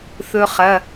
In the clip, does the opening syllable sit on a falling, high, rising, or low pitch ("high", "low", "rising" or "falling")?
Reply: high